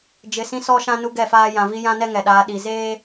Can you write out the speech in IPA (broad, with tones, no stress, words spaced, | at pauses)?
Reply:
d͡ʒɪ˨sĩ˦sɔ˦ʃã˦ nu˦ɡɛ˦˨faː˦ jã˨vi˦ jã˦nɛ˦ ŋɛ˨ɗaː˨˦ ɗi˨ zeː˦